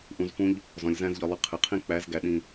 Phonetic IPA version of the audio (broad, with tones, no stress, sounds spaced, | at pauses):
ʔ ũ˧ z f ũ˦ ʎ | z ɔ̃˨ lʲ z æ̃˦ z ʎ ɤ˧ lˠ ɨ˧ qʰ ɨ˨ qʰ ĩ˦ k͡p æ˨˦ z ɡ æ˨ ɗ ĩ˨